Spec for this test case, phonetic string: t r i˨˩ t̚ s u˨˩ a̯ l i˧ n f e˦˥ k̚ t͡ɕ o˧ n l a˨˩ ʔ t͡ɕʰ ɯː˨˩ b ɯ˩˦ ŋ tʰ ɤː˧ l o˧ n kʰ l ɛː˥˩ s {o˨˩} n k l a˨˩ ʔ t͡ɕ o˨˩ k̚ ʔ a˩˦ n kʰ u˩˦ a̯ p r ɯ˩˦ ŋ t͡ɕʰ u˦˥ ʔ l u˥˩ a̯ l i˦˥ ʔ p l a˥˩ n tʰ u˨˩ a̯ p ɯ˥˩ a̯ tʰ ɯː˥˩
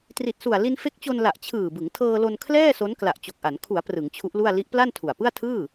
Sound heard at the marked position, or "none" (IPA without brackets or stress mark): o˦˥